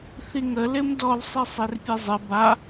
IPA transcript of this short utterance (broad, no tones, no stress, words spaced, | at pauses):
θiŋə lɪmdɔl sˤisˤerpʲezˤɪ ba